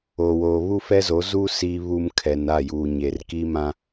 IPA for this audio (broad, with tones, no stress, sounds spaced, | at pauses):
o˨ w oː˨ β u˦ f ɛ˦ z o˨˦ z uː˦ s i˨ β u˨ m kʰ ɛ˨ n a˦˨ j uː˨ ɲ e˨ r k i˦ m ã˦